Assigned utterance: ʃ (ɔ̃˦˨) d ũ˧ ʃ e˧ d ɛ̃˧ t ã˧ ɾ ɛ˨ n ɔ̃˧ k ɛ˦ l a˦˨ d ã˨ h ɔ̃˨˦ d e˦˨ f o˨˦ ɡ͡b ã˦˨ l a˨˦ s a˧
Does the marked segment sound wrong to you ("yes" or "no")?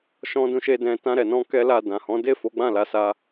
yes